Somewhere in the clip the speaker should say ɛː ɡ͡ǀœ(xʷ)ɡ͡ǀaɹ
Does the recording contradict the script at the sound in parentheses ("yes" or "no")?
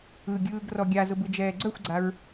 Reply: no